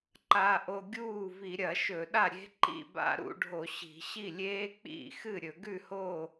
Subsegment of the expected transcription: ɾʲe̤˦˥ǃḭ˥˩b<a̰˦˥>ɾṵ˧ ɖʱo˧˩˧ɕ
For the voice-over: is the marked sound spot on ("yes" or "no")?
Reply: yes